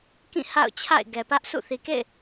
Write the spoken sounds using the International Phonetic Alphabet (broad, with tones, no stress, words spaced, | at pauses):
kĩ˦˨ ha̰˦˨ʊ̯ t͡ɕʰa̰˦˨ɪ̯ ɡɛ˨pä˦ʔ sʰṵ˦˨ θi˨kḛ˦˨ɪ̯